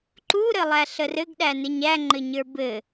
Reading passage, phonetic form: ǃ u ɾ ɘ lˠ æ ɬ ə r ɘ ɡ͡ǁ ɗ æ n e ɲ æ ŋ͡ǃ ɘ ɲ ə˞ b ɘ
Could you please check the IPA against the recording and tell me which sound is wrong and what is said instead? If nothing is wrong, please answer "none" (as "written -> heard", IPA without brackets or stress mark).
ɡ͡ǁ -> ɡ